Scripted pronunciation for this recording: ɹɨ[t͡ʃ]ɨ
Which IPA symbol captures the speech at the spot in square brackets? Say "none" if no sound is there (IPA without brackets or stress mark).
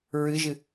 ʒ